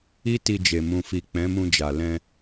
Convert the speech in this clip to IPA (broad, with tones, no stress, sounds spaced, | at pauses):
i˦ t i˧ d͡ʒ e˨ m ũ˨ f i˨ k͡p ɛ̃˨˦ m ũ˧ d͡ʒ a˨ l ɛ̃˧